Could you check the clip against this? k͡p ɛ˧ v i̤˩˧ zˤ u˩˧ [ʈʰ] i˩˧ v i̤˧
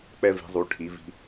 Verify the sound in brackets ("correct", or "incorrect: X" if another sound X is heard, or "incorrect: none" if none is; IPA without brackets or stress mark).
correct